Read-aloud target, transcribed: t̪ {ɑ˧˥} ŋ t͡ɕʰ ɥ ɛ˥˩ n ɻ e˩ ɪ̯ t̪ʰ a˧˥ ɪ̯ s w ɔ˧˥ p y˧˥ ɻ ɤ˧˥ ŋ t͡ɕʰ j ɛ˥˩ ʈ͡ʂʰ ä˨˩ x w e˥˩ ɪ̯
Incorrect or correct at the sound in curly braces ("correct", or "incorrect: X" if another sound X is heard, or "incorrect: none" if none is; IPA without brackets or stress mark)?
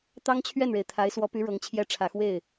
incorrect: ɑ˥